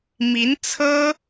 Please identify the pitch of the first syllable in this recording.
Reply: rising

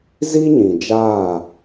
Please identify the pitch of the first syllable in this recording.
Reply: high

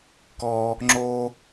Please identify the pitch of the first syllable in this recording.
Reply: high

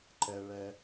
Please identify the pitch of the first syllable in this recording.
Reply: low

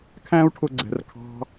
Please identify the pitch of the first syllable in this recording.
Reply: high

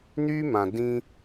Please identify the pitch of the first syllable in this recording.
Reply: high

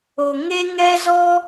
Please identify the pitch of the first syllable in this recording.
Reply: low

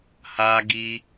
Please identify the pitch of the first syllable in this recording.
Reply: high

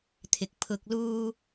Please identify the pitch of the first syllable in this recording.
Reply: low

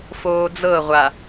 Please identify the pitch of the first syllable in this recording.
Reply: low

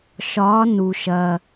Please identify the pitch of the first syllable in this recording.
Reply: rising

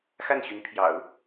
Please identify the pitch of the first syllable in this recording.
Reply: falling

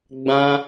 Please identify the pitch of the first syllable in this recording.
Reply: high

